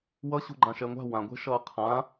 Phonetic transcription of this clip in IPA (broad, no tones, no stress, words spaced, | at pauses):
wʌɕṳ ɡ͡ǃãʃɛŋʷa̤ wãɡʷɛ̤ʃʌː qʰã